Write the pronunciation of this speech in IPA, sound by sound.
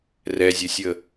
rɛzʲɘsʲə

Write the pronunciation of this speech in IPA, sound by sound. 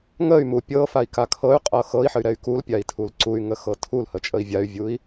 ŋəy̯mu pʲɤfai̯ka kʰɤy̯qʼɤ xɤi̯ħəy̯ɾɛy̯ kulpʲai̯tʰul ǀuy̯ŋəxɤ tʰulhət͡ʃʼəi̯ vʲay̯vʲui̯

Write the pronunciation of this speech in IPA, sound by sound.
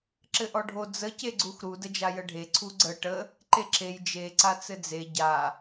ǁɘʔɔɖʱo d͡zə ceɡ͡ǀuxɾu dəd͡ʒajəɖʱe ǀʰuɡ͡ǀə ʈə | ǃeǁej d͡ʒe ǀat͡sɘd͡ze ɟa

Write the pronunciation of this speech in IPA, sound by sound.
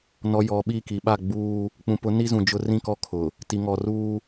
nɔ˨ jɔ˨ɓi˦˨ ki˨ɓa˦˨ɡ͡buː˦ | k͡pũ˨pʊ˨˦ ni˦zũ˨d͡ʒʊ˦ rĩ˦˨kɔ˦kʰʊ˨ | ti˨ŋɔ˨ruː˦

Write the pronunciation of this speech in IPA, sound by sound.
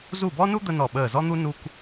zu˧˩bɔ˦nu˦ d̪ə˦nɔ˧˩ɓəː˧˩ zɔ˦n̪u˦ nu˦kʷ

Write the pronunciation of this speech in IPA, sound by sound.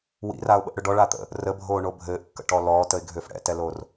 wḭraʊ̯ɓə̰ʔɽʏ ɖɔɭat̪ə̰ | rəbʱoːɳo bʱɘːʔkːə̰ʈɔ lɔːtəɪ̯ɡʱʏːf ɽɛ̰tɛlor

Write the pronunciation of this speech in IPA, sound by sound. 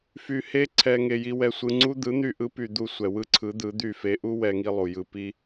fy˧he˦ǀʰɛ˧ ŋe˧ji˦ wɛ˧sʷɯ˧ŋ͡ǀu˦ d̪ɯ˨˦n̪y˧ʔɯ˨˦py˨ d̪u˧ sʷɛ˨wɯ˦ǀʰɯ˨˦ d̪ɯ˨˦d̪y˦˨ fe˧ʔu˦ wɛ˧ŋi˧ lˠu˨jɯ˧pi˦

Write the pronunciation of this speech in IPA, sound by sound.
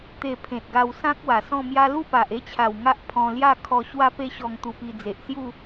t̪e˨˩ pʰẽ˨t̚ɡa˧wsã˦k̚wa˨˩ sɔ̃˥˧mja˦ lu˥˧pa˨ʔe˥˧t͡ɕʰa˨˩w ŋa˦ʔpʰɔ̃˧lja˥˧ kʰɔ˧ ɕwa˦pe˦ɕɔ˧ŋ t̪u˧pi˧d͡ze˨ʔ sju˥˧

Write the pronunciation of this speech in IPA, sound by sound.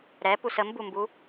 ɾɛpus əmbumbu

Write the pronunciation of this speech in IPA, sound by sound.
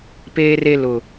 peː˨re˨ lʊ˨

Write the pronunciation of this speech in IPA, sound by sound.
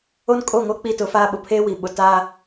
o˦n kʼo˦˨ŋo˦ k͡pi˦tʊ˨˦faː˦ ɓʊ˨pʰeː˦wi˨ɓʊ˨ taː˦

